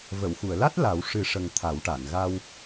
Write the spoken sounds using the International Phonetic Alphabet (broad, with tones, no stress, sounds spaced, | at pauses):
v ə˨˩˨ w x u˨˩˨ ə̯ l a˦˥ t̚ l a˨˩˦ w ʂ ɨ˨˩˦ ʂ ə˨˩ ŋ t̪ʰ a˨˩˦ w ʈ a˨˩˨ n ɣ a˧ w